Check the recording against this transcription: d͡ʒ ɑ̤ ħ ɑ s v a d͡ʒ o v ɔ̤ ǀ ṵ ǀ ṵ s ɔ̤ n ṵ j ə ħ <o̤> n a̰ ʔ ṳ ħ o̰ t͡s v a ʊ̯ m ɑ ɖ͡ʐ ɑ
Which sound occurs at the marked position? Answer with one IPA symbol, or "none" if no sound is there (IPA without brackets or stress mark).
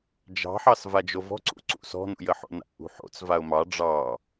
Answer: o̰